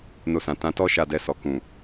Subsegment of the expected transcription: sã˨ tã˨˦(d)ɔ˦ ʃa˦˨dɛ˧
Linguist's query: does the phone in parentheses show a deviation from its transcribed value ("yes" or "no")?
yes